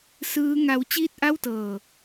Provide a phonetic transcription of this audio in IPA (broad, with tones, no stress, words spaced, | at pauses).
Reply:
sɯː˦˥ŋa˦˥w t͡ɕiː˥˩t̚ʔa˥˩wtɤː˧